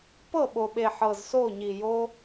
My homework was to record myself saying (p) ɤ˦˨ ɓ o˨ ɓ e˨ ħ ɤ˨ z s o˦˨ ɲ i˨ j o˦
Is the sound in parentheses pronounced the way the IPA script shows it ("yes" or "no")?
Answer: yes